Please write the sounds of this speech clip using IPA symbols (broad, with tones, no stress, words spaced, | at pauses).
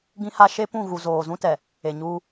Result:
ɡĩ˦ha˦ ʃe˦pũ˦˨ ɣu˨zoː˨zũ˦tɛ˨ | e˨ɲuː˦